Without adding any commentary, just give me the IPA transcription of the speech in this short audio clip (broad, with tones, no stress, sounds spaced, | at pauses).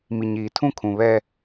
m i˨ ɲ iː˨ tʰ ũ˦ kʰ ũ˨ β ɛ˦